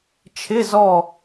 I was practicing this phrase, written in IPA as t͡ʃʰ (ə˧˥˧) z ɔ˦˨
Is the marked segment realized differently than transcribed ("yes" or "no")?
yes